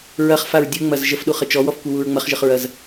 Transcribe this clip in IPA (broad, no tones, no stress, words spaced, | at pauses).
ɹɐχfaɹ dʲɨŋ͡mɐz ʒəfɗuχə t͡ʃɔwɔfkʷɨwuɹ ŋ͡mɐχʒəχɹɐz